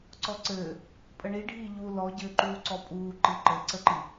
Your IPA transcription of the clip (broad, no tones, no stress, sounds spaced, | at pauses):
ǀ ɔ ǀ ɘː | pʼ ə ɳ i ɖʱ iː ʎ u l ɔ ɟ ɘː ǃ uː ǀ ɔ pʼ uː ǃ i ǃ ɘ ǀ ə ǃ i